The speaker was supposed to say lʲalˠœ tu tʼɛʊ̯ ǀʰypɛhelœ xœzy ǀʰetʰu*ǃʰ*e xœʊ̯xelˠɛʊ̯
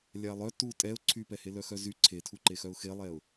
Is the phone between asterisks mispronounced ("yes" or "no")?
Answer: yes